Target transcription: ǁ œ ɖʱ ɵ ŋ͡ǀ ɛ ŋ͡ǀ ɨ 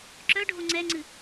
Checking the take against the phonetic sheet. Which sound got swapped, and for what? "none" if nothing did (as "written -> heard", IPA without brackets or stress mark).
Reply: ɵ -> o